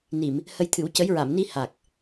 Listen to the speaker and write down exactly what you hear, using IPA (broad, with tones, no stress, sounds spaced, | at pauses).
n i˨˩˨ m | h ə˧ j t̪ʰ ɨ˨˩˦ w c ə˧˥ j ɹ a˨˩˨ m n i˧ h a˨˩ k̚